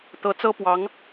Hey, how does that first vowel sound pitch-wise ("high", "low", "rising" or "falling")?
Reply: rising